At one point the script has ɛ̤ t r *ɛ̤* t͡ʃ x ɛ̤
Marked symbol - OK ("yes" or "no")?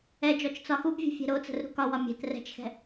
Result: yes